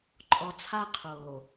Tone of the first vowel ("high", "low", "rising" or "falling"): low